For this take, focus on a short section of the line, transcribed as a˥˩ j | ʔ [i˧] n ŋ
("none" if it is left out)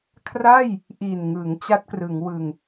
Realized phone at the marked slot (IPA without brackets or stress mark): i˨˩